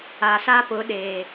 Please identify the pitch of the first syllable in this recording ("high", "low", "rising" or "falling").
low